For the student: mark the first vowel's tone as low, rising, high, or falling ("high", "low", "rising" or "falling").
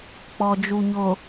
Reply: low